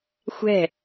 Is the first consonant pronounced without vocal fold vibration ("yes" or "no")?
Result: yes